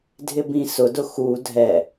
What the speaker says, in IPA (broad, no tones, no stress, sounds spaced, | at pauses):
dʱ ɪ b ĩ s ʊ d ʊ x u dʱ ɛ